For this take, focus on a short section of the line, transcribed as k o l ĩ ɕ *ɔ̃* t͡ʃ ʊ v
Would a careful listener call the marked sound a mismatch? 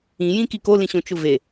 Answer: yes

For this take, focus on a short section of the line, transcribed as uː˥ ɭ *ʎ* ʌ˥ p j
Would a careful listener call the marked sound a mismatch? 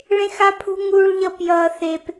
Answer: no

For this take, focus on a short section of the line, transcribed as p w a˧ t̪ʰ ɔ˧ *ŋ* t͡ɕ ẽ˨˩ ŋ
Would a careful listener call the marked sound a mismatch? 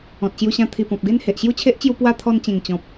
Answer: yes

